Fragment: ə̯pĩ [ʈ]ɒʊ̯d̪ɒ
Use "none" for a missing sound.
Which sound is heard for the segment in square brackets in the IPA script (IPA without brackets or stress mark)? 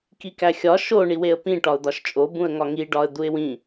ʈ